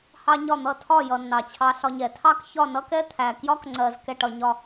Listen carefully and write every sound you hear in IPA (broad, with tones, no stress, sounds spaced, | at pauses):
h ɑ˥ ɲ ɒ˥˧ n̪ ʌ˥˧ tʰ ɒ˥˧ j ʌ˧ nː ɑ˧˩ t͡ɕʰ ɑ˧ ɬ ɒ˧ ɲ ɛ˩˧ tʰ ɑ˥˧ k ç ɒ˥˧ n ʌ˥ k ɛ˥ t̪ʰ æ˧ k j ɒ˥ k ŋ͡ǀ ɜ˧ z k ɛ˥˧ ʈ ʌ˧ ɲ ɒ˥˧